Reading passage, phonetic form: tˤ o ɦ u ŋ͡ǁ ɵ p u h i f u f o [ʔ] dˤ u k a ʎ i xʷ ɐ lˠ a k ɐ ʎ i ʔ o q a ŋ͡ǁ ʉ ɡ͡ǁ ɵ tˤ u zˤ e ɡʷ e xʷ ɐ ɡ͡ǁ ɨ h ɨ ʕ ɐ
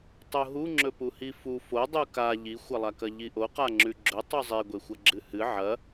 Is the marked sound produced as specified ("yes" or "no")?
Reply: no